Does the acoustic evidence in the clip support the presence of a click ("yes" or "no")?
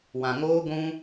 no